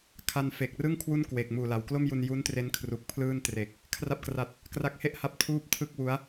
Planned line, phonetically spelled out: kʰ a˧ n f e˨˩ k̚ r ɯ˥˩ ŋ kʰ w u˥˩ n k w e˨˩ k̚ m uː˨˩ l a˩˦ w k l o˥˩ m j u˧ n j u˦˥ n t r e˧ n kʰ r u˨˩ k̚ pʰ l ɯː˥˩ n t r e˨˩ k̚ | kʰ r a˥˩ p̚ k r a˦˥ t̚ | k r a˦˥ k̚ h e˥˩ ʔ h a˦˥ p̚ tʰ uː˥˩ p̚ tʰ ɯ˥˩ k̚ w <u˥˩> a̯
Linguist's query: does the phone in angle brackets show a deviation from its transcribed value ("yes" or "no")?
yes